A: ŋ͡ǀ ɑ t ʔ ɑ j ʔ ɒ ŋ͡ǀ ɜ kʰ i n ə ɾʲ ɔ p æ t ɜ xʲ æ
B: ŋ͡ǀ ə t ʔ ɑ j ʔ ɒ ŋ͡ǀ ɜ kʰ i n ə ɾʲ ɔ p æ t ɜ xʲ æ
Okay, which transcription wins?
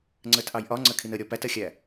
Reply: B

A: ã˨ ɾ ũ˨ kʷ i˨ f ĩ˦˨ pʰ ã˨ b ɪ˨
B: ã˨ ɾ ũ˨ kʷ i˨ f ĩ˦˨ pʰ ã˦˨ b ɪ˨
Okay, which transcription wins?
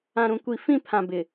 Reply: A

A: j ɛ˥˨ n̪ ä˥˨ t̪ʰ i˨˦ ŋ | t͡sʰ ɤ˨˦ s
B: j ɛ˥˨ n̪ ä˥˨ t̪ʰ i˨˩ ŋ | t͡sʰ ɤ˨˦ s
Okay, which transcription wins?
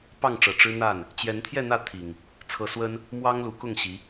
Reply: B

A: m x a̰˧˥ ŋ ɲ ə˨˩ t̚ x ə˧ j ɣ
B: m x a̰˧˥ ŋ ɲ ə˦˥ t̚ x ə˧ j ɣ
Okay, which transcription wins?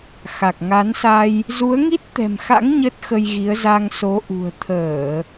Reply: B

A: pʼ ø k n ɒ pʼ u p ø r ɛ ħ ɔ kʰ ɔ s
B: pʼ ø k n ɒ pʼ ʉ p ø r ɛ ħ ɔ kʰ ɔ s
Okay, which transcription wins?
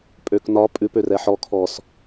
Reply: B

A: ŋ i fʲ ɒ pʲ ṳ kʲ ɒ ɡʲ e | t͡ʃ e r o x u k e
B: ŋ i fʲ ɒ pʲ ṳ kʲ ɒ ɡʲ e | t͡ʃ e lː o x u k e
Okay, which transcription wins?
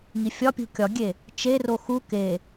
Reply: A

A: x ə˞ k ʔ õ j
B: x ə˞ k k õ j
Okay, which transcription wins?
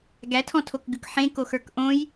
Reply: A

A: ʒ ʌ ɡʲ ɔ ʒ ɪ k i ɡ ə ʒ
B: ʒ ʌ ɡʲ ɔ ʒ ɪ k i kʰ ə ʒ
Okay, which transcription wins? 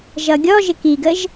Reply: A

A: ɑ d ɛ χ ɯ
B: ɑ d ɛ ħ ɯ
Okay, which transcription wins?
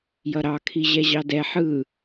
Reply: B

